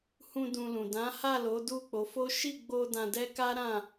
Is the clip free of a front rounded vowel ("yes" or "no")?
yes